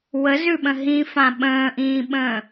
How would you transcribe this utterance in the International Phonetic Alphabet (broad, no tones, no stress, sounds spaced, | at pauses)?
w ə z ʉ ɓ ə̃ ɦ ĩ f ã ɓ ə̃ː ʔ ĩː ɓ ə̃ː